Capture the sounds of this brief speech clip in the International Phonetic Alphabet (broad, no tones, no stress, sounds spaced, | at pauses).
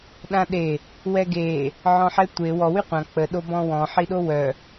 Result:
ɗ ã ɗ e | w ɛ ɡ e | ʕ ɔ̃ ħ ɛ tʷ e w ɔ w y qʷ ã k͡p ə ɗ o b ɔ̃ w ɔ̃ ħ i ɗ o w œ